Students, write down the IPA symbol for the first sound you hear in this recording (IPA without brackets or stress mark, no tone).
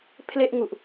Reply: pʰ